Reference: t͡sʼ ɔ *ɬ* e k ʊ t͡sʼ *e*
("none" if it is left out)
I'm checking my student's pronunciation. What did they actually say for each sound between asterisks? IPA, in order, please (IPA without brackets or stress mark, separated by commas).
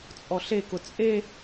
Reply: ɬ, e